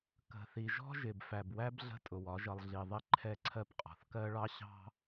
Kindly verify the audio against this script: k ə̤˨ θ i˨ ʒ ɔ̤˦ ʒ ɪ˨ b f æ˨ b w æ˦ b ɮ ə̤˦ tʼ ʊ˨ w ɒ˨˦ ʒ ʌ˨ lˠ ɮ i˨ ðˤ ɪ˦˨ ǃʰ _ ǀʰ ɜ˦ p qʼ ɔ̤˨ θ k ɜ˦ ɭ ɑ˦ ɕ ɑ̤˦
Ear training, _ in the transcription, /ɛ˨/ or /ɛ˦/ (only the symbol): ɛ˦